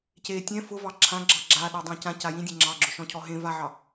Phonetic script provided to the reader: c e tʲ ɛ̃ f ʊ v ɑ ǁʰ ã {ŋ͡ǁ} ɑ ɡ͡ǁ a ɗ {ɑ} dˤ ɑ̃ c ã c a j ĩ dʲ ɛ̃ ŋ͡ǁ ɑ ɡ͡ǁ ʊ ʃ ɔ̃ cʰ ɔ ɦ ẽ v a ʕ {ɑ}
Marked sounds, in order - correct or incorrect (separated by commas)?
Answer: incorrect, correct, correct